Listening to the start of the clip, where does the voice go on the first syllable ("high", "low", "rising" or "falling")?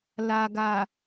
low